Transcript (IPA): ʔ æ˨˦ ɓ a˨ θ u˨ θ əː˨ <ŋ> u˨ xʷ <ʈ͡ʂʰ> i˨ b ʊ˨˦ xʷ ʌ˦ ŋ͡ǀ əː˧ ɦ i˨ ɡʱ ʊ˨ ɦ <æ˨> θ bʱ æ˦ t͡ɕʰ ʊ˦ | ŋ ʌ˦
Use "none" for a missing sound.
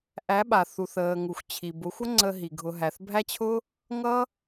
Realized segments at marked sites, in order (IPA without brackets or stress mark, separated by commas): ŋ, t͡ɕʰ, æ˨